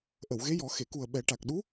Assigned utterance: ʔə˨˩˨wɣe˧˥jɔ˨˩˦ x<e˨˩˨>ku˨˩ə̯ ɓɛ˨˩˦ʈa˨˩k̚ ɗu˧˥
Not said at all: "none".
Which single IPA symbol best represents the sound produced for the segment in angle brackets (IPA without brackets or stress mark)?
e˨˩˨